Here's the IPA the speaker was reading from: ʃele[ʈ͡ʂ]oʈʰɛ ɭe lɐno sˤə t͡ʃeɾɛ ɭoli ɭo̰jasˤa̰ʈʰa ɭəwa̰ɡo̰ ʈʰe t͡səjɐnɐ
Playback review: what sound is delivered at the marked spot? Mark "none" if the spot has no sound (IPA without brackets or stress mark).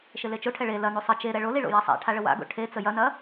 t͡ʃ